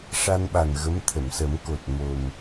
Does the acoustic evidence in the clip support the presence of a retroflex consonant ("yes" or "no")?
yes